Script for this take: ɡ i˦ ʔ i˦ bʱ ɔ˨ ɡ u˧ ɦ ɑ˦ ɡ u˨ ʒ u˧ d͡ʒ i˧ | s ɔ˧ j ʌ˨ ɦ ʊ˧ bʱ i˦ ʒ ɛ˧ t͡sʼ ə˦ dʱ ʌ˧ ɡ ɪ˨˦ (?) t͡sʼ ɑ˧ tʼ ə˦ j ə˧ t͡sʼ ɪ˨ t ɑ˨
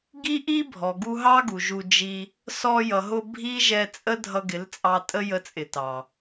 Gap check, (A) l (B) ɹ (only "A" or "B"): A